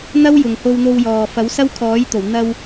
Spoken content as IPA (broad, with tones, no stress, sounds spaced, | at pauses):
n̪ ɐ˥ w j ʊ˨ ŋ h o˧ w n̪ o˧ w j ɔː˨ f ɐ˨˥ w s ɐ˥ w kʰ ɔː˨˥ j t̪ o˨˩ w n̪ ɐ˧ w